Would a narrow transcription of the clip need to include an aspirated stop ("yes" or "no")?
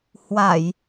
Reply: no